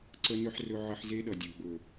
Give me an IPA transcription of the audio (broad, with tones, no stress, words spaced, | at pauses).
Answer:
ǀə˦nɵ˦ħ rɵ˦ ʕə˦ħ ze˦ɗʌ˨dʲə˨ɡ͡bɵ˨